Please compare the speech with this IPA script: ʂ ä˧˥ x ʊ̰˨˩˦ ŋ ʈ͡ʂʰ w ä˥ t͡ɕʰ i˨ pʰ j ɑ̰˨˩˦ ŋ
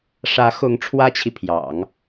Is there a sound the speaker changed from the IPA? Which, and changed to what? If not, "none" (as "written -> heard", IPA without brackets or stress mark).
ʊ̰˨˩˦ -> ʊ˧˥